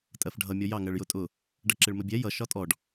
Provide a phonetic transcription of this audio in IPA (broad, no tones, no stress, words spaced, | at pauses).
tʼɜfɖʱʌ mʲɔjɑ ŋɜɭjʊtʼʊ | ɖʌǁɪɭməbʲɛ jʌ ʃɒtʼɔɖ